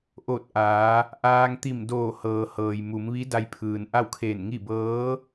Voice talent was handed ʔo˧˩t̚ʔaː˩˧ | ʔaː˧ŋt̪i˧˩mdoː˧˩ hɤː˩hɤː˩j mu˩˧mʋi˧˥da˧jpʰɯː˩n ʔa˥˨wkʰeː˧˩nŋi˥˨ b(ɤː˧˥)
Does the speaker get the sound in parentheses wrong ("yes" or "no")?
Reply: no